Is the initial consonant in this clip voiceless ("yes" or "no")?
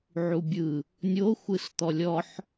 no